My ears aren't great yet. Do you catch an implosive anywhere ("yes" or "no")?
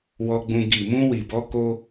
no